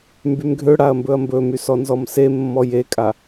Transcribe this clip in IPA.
m b y m ɡʱ ø ɽ a ɐ̯ m b ɵ ɐ̯ m b ɵ m y s ɔ n z ɔ m s e mː ɔ j e kʼ a

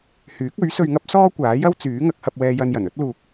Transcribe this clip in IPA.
h yː˨˥ k̚ ɵ˨˥ ɥ s ɵ˧ ɥ ŋ ɐ˥ p̚ s ɔː˥ kʷ aː˨˥ j ɐ˥ w t͡s yː˨˥ ŋ ɐ˨˥ k̚ h ɐ˧ p̚ w ɛː˧ j ɐ˧ n j ɐ˨˩ n ɵ˥ t̚ l uː˨ k̚

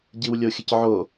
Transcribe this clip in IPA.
ɟ i w lʲ o xʲ ə c ʕ o

